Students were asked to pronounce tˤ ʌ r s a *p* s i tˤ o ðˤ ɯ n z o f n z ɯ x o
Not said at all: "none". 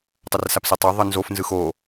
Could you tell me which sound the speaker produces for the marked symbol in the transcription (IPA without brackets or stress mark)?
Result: p